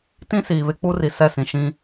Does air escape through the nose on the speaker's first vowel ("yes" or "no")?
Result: yes